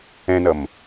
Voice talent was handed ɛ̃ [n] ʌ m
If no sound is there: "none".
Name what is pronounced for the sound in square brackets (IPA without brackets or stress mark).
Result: n